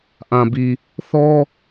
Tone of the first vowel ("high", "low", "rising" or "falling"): low